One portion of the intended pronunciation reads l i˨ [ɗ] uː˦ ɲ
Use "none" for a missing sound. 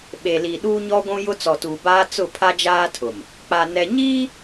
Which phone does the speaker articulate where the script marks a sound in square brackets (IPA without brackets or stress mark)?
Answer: ɗ